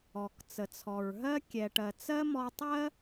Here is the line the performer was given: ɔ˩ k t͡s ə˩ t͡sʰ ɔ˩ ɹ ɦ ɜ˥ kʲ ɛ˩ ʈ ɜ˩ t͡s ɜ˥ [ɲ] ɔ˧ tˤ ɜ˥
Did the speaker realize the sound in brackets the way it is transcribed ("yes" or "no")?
no